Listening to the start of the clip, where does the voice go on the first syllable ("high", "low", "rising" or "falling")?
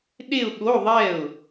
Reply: falling